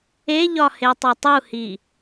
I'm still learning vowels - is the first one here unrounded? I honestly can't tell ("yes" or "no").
yes